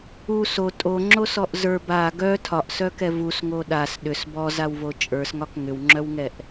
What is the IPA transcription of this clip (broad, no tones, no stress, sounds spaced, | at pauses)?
u s o tʼ o ŋ͡ǁ o s ɔ ʔ z ə˞ b a ɡ œ tʰ ɒ ʔ s œ k ɛ v u s ŋ o ɗ a s ɗ ʏ s b ɔ z a w v o t͡ʃʼ ə˞ s ŋ ɒ k ŋ ʏ w ŋ͡ǁ œ w ŋ ɛ ʔ